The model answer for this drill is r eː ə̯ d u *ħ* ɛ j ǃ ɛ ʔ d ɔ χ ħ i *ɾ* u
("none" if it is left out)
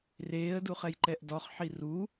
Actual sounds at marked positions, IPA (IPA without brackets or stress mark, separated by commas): χ, r